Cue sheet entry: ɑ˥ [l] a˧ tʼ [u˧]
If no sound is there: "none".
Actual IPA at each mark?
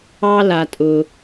l, ʊ˧

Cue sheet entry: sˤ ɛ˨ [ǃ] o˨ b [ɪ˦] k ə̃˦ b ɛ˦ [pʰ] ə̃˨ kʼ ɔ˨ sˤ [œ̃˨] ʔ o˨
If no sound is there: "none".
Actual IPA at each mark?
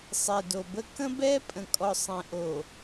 d, ə˦, pʼ, ɛ̃˨

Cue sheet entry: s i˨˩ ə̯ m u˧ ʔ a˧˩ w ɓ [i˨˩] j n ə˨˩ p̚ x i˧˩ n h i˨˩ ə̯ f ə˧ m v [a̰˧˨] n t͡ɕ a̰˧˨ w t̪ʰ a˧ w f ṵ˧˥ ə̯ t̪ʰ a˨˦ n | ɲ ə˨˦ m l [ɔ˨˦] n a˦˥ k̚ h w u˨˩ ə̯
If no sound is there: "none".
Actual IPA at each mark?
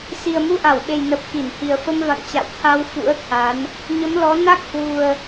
e˨˩, a̰˧˨, ɔ˨˦

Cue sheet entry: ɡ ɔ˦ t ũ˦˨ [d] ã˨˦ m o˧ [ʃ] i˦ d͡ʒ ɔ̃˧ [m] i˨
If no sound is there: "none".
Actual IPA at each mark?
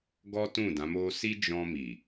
d, s, m

